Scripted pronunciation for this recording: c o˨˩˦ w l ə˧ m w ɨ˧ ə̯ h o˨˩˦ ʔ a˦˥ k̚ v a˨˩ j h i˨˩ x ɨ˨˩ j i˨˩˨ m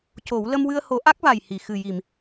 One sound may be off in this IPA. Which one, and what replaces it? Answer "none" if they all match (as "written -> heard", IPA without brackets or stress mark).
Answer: none